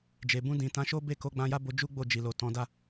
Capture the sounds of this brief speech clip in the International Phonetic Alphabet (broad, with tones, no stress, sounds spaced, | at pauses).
d͡ʒ e˨ b ũ˧ d ĩ˨ t ã˨˦ ʃ o˦ b e˦˨ k o˨˦ ɡ͡b ã˧ j a˦ b o˧ d͡ʒ u˦ ɡ͡b o˦˨ d͡ʒ i˨ l o˨ t ɔ̃˨˦ d a˦˨